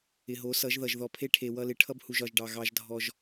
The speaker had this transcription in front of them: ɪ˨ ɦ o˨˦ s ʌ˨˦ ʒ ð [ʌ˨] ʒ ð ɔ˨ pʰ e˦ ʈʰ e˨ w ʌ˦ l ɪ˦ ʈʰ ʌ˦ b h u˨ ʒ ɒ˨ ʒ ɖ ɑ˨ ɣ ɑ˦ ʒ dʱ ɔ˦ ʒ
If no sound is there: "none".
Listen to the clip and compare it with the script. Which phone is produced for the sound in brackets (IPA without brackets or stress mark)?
ʌ˨